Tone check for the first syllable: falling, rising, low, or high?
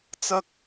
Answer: high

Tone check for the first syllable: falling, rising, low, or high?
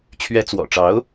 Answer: rising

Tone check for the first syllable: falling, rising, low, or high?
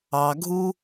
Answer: low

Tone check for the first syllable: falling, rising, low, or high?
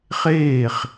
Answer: falling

